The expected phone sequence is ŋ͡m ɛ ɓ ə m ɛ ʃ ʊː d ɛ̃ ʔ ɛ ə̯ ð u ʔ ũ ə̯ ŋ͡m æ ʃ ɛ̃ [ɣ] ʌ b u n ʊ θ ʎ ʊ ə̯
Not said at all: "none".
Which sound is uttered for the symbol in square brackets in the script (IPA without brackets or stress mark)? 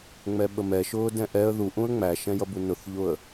j